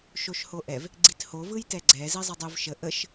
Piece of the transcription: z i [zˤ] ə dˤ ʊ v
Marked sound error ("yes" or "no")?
no